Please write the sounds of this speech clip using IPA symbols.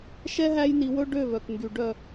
ʃ ɛ˦ ɦ æ˦ j n i˧ w ɵ˦ ɖ ø˦˨ v œ˨ k ŋ ɡ y˨ ɖ œ˦˨

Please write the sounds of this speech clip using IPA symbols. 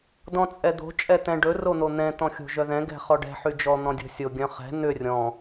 d ɔ̃ t͡sʼ ɛ d̪ o̤ t͡ʃʼ ɛ t̪ ɛ̃ ɖ ɵ r o n̪ o n̪ ɛ̃ t̪ ɔ̃ xʲ o̤ ʒ œ ð ɛ̃ ɡ ɛ̤ χ ɔ ɖ ɛ̤ ħ y d͡ʒ ɔ n̪ ɔ̃ dʲ o̤ sʲ o ɡʲ œ̃ χ ɛ̤ n̪ ʏ rʲ ɔ̃

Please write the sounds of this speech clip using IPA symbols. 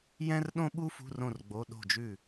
j ɛ̃˥ r ɗ õ˥ ɓ u˥ f ṳ˧˥˧ r õ˥˨ r ɡ͡b o˧˥˧ ɗ o̤˥˨ d͡ʒ ʉ˥˨

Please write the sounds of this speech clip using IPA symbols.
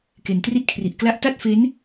k e˨˩ n t r i˥˩ t̚ kʰ r i˨˩ ʔ k l a˥˩ ʔ t a˥˩ t̚ f e˦˥ n

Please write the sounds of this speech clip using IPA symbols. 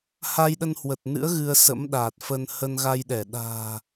h a˧ j ɗ ə˧ n h w ə˨˩ t̚ n ɨ̰˧˥ ə̯ ɣ ɨ˧ ə̯ s ə̰˧˥ m ɗ aː˨˩ t̚ f ə˧ n h ə˧ n ɣ a˧ j ɗ ɛ˧˩ ɗ a̤ː˨˩

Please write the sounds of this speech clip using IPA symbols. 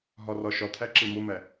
ɦ ɒ r ɒ ʃ ɒ t̪ʰ æ ǁ e m o m æ

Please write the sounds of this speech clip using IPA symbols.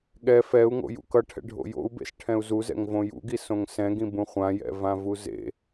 ɠ ɛ f ɛ u̯ ŋ o̰ j ṵ k ʌ ʈʰ ɛ̰ ɖʱ o̰ j o̰ u̯ b ḛ s ʈʰ ɛ̃ u̯ z u z ɛ̰ ŋ v õ j ṵ ɡ i s õ ŋ s ɛ̃ ɡ ĩ b ũ χʷ ã j ɛ̰ v ã v u z ḛ

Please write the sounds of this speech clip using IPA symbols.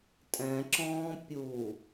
tʼ ɛ̃ ǁ ɔ̃ː pʲ u

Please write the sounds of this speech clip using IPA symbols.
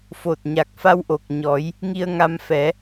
f o˨˩ t̚ ɲ a˨˩ k̚ f a˧ w ʔ o˨˩ k̚ ɲ ɔ˨˩˦ j | ŋ i˧ ə̯ ŋ a˧ m f ɛ˨˩˦

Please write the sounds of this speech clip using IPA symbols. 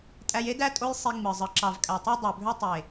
tʼ æ˧ j e˦ d æ˦ tʼ o˦ j sˤ i˧ ŋ͡m ɯ˨ zˤ ɯ˨ ǁ ɑ˨ v kʼ æ˨ tˤ ɑ˧ dˤ o˨ bʱ ø˧ tˤ e˨

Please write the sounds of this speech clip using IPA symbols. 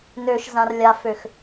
n ø ʃ z ã r lʲ a f ø x

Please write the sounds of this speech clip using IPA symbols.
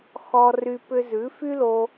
x ɔ˧ r y˧ p ʏ˧ z ʉ˨˦ f y˦ l o˧

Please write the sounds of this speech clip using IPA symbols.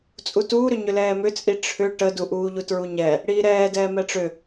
t͡sʼ u t uː ɾ ʏ ɲ ʏ l ɛː m ʏ t͡sʼ i ʈ͡ʂʰ ʏ ʈ ə d u ʔ uː ʎ u t ɹ u ɲ ɛ | ɽ iː ɾ ɛː d ɛː m ɛ ʈ͡ʂ ʏ

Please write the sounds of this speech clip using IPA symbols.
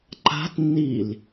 ǃ a̤ t nː i l

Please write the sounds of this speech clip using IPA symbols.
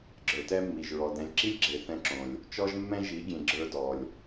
ɡ͡ǁ ə˞˨ t ɛ˦ mː i˨ ʒ ɹ ɔ˨ d ɛ̃˨ lʲ ǁ i˦ lʲ ɡ͡ǁ e˨ θ ɛ̃˦ ǁ õ˨ lʲ | t͡ʃ ɔ˦ ʒ mː ɛ̃˦ ʒ i˨˦ ɡʲ ẽ˨ ɡ͡ǁ ə˞˦ d ɔ˨ lʲ

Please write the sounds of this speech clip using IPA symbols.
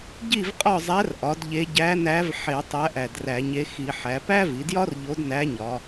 ɟ i˥˨ v qʼ ɒ˥˨ zˤ æ˧˥ r ʔ ɒ˩˧ d ʎ e˧˥ ɟ æ˧˥ n æ˧˥ v ħ e˧˩˧ tˤ æ˧˥ ʔ æ˨˩ d r æ˧˩˧ ɲ e˧˥ x i˧˩˧ ħ æ˩˧ p æ˥ v i˩˧ d j ɒ˥ r ʎ o˧˥ d n æ˧˥ ɲ ɒ˩˧

